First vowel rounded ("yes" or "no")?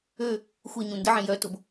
yes